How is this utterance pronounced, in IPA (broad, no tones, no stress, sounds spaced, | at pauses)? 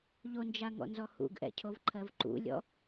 ʎ o n d͡ʒ a ŋ ɔ̰ n z ɔ h ṵ ɡ ʔ ɛ̰ cʰ o v ǃʰ ɜ v ǃ ṵ lʲ ɔ̰